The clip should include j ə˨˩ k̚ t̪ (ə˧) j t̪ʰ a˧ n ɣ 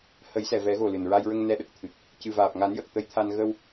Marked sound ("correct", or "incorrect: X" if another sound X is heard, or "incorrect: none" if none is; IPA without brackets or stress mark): correct